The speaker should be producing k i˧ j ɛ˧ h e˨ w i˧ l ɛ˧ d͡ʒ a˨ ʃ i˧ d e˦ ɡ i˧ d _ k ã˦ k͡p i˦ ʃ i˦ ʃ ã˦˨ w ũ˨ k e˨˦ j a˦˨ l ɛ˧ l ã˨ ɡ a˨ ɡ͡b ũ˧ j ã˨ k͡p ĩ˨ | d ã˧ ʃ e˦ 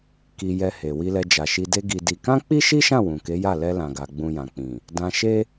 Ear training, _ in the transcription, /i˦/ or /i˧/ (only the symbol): i˧